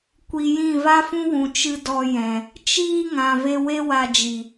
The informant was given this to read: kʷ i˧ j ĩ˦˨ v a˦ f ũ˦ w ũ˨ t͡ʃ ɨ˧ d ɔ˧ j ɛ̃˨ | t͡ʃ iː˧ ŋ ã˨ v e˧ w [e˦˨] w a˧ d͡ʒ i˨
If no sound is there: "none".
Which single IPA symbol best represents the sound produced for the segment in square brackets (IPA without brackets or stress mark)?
e˦